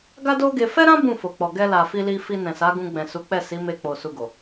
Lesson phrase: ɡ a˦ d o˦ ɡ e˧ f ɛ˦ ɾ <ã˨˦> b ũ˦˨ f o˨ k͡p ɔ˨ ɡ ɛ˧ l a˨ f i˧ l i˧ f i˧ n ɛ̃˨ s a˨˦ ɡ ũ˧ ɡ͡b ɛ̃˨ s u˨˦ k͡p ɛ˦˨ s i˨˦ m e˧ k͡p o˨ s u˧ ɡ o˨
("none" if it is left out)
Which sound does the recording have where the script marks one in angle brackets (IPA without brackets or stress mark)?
ã˦